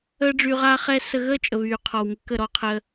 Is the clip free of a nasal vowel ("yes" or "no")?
yes